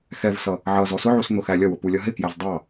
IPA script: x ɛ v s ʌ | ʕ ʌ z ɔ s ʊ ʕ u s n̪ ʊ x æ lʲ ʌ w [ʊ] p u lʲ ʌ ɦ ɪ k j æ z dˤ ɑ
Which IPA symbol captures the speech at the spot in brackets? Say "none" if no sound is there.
ʊ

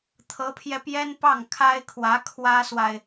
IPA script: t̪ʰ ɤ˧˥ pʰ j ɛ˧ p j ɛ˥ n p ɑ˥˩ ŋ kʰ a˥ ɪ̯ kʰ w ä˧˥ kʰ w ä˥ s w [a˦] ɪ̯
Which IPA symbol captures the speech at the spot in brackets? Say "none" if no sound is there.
a˨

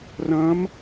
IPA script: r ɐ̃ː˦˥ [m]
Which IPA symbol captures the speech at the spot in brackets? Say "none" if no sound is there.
m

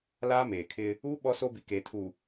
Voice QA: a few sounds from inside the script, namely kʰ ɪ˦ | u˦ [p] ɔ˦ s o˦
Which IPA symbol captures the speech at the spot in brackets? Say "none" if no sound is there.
ɓ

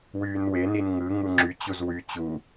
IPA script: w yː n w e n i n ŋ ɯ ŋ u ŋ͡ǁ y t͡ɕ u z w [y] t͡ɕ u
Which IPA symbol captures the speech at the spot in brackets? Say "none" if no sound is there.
y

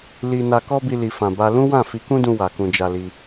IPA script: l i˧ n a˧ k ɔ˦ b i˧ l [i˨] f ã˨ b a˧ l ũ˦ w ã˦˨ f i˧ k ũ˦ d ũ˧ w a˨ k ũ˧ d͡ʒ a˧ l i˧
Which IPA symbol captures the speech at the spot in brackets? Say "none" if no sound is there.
i˨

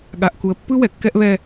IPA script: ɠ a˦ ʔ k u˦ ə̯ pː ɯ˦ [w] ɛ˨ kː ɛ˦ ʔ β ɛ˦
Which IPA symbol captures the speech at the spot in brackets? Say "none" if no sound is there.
w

